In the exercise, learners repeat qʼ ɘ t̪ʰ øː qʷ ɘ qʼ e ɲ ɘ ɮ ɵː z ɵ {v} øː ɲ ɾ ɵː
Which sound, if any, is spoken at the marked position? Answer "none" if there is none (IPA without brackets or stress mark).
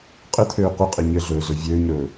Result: vʲ